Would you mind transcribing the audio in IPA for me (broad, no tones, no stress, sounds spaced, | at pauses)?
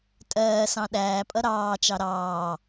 tʼ ɜː s ɑ̃ ɗ æː pʼ ʌ ɾ ɑː t͡ʃ ɑ ɾ ɑː